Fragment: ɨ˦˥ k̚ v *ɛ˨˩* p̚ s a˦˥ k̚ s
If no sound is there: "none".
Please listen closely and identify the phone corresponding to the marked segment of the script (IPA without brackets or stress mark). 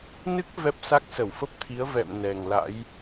ɛ˦˥